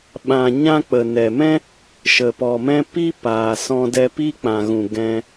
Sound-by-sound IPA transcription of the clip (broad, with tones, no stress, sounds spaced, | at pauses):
ɓ ã˨ ɲ ã˧ k͡p ə˨ n ɛ˨ m ɛ̃˦ | ʃ ə˨ p ɔ˨ m ɛ̃˧ p i˦ p aː˨ s ɔ̃˧ d ɛ˧ p i˦ k͡p ã˨ ɣ ũ˨ ɡ ɛ̃˧